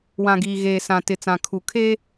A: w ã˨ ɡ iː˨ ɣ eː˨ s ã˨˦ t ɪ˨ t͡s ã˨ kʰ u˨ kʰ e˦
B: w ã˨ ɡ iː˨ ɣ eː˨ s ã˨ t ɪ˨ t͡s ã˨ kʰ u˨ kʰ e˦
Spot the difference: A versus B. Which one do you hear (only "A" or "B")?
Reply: B